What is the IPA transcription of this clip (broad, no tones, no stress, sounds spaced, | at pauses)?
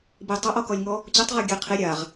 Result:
b i tˤ ʌ ʔ ɔ k ɔ lʲ ŋ ɔ | t͡ɕ u tˤ ʁ ɔ ɡʲ ɛ qʰ i ɾʲ a ʁ